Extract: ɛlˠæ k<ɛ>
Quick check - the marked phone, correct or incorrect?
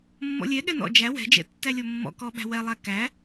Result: incorrect